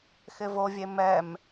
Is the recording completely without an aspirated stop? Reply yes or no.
yes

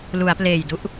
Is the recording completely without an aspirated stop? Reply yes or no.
yes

